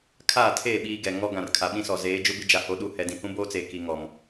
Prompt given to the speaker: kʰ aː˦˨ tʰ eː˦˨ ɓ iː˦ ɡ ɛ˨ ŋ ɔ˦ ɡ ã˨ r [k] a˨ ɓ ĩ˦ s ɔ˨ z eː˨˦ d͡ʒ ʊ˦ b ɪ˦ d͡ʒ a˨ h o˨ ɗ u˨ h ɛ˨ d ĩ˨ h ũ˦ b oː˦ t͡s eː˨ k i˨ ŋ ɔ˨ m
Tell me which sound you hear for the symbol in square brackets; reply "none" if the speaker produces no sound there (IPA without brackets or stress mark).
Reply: kʰ